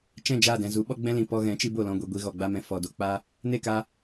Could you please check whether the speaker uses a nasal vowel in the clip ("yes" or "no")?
yes